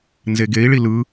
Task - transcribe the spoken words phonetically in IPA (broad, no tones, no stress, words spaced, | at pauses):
nzeɡei̯ɭi lɯ